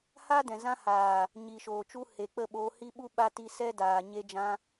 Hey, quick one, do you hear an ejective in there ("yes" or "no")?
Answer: no